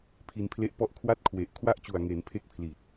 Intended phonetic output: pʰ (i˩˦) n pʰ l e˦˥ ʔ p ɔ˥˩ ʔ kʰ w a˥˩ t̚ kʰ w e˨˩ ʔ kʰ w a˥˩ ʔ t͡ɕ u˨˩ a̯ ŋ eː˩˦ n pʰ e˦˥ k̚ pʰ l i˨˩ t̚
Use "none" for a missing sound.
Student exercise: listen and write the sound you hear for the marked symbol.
i˧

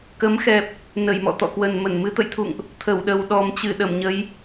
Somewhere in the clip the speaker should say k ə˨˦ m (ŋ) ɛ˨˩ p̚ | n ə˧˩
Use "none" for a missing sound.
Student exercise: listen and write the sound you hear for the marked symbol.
x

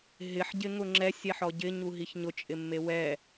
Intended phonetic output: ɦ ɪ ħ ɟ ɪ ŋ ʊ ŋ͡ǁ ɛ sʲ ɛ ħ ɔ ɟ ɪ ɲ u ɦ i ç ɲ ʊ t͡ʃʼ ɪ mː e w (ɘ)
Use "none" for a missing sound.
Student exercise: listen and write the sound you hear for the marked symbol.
ɛ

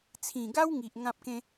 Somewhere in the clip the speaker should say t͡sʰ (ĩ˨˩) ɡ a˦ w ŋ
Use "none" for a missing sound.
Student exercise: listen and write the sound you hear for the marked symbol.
ĩ˨˩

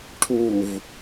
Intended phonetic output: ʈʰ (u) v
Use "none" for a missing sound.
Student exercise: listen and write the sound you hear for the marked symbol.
u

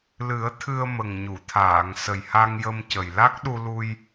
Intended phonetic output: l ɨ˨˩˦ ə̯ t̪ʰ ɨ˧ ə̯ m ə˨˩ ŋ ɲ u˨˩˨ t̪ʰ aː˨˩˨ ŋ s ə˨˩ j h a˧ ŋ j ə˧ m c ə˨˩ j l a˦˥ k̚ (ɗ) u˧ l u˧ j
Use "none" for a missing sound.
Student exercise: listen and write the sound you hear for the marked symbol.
ɗ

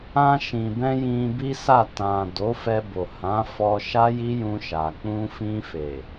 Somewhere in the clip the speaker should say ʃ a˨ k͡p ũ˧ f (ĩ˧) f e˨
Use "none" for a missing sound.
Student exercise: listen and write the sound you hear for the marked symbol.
ĩ˧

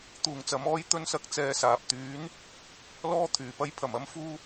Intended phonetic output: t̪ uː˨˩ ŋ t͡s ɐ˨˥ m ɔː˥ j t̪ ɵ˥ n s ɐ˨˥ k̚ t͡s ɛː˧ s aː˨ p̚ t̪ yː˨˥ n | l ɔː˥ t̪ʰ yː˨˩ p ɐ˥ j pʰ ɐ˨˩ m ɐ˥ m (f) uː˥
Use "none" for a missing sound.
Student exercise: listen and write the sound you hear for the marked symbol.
f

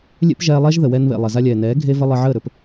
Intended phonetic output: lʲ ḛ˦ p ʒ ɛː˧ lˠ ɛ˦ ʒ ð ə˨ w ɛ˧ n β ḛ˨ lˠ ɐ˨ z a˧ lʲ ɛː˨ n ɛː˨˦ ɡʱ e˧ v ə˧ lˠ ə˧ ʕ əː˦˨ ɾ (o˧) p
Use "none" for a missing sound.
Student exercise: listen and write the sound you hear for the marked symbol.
ɵ˧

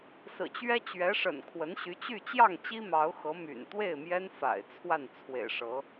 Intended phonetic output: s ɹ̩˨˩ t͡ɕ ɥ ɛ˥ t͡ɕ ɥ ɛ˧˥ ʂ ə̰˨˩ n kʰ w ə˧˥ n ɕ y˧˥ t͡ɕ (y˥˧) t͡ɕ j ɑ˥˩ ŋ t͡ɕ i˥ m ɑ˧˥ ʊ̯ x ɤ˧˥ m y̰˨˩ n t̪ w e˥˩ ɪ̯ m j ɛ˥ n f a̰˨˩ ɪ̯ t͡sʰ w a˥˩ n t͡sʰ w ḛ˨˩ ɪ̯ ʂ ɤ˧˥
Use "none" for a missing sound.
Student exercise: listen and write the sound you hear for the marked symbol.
y˥˧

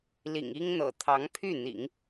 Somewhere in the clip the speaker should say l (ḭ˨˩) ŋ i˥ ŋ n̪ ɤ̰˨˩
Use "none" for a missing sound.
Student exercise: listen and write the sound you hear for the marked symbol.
ḭ˨˩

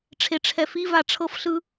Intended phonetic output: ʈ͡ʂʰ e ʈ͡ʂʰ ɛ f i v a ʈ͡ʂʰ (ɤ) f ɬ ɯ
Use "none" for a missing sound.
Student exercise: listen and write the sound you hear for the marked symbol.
ɤ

